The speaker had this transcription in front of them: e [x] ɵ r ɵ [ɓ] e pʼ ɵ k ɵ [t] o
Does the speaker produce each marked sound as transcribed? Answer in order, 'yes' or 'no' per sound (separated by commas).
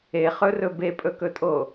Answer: no, no, no